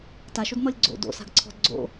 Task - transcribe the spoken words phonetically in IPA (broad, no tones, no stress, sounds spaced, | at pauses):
t a ʃ o d n̪ ɔ lʲ ɡ͡ǀ o̰ d o̰ s a̤ ɡ ǀʰ ɔ̤ d ɡ͡ǀ o̰